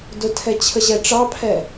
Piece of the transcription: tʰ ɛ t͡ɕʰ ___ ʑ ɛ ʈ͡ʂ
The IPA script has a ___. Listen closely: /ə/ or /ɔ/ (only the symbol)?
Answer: ə